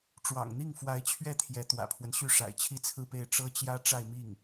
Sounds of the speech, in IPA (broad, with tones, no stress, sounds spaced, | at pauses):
ʈ͡ʂ w ɑ̰˨˩ ŋ n̪ i˥˩ ŋ f w a˧˥ ɪ̯ t͡ɕʰ ɥ ɛ˥˩ t̪ʰ j ɛ˧˥ t̪ w ä̰˨˩ pʰ w ə˦ n ɕ y˥˩ ʂ a̰˨˩ ɪ̯ t͡ɕʰ i˥˧ t͡sʰ ɹ̩˥˧ p e˥˩ ɪ̯ ʈ͡ʂ ɤ˥ t͡ɕ j ä˥ ʈ͡ʂ a˥˧ ɪ̯ m i˥˩ ŋ